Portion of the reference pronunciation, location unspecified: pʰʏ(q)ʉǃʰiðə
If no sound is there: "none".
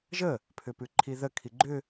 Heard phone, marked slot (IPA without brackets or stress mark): p